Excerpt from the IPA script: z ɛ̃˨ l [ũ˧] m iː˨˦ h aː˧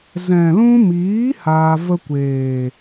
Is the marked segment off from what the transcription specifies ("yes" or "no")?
no